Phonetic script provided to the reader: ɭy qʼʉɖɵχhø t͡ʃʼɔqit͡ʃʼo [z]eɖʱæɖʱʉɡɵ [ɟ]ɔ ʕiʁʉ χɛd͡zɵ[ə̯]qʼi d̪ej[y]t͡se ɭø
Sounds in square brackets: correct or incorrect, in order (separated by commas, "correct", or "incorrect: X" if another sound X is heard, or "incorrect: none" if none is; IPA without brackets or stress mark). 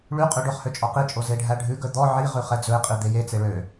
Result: correct, incorrect: d̪, incorrect: ɪ̯, incorrect: e